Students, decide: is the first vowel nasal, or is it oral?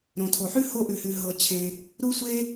nasal